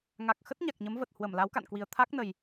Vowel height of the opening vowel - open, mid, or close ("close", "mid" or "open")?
open